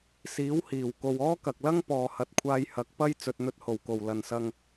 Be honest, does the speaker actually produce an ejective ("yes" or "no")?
no